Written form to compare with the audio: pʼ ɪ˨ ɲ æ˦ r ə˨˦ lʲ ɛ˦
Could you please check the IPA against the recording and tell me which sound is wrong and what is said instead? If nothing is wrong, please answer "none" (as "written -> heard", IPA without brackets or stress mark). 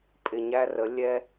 none